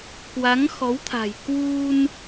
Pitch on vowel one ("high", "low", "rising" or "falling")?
rising